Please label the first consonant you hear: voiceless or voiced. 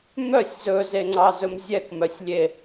voiced